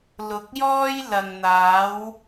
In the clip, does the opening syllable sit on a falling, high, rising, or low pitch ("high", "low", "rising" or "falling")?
low